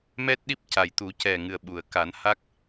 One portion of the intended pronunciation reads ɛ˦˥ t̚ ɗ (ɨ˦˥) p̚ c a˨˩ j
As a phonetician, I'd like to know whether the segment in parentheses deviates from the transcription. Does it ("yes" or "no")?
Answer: yes